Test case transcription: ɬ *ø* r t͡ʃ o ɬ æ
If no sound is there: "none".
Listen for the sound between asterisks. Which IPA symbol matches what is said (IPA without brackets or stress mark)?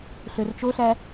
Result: ø